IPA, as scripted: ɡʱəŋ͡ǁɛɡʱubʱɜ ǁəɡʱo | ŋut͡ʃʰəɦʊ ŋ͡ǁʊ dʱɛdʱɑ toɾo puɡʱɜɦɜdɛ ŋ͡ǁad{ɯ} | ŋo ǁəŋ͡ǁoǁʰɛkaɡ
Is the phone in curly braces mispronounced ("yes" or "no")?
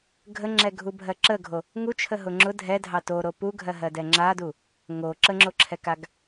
yes